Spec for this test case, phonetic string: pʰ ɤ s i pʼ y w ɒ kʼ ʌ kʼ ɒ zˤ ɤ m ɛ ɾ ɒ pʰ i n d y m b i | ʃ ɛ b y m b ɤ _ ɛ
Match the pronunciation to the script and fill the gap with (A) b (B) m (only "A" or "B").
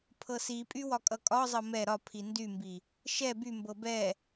A